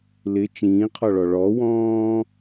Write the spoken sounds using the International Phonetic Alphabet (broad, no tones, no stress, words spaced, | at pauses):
lɪ t͡ʃĩːqʰɔɭɔ ɭɔwɔ̃ː